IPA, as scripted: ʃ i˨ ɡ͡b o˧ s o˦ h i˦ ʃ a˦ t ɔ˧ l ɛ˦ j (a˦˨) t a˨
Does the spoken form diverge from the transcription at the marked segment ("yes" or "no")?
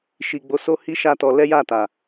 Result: no